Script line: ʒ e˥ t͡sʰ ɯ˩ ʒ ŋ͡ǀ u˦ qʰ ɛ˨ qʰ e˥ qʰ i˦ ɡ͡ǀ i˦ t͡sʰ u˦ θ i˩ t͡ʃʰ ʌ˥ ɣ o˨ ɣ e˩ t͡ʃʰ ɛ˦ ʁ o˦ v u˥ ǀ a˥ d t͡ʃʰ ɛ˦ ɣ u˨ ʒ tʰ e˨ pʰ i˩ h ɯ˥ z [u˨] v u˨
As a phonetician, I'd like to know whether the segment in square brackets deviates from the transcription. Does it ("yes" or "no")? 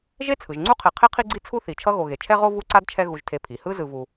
yes